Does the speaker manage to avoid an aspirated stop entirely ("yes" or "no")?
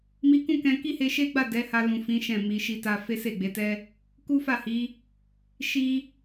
yes